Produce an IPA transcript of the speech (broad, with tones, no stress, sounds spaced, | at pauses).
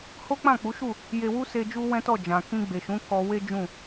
h o˦ k͡p ã˦˨ k͡p u˨˦ ʃ u˦˨ | j e˧ w u˦ s e˧ d͡ʒ u˦ w ɛ̃˦ t ɔ˦˨ d͡ʒ ã˨ k ĩ˧ ɡ͡b e˨ ʃ ũ˨˦ k ɔ˧ w e˦ d͡ʒ ũ˦˨